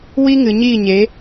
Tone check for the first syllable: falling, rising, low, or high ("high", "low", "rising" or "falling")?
high